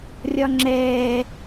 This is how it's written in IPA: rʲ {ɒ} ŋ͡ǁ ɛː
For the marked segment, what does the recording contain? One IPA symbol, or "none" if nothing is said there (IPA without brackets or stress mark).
ɒ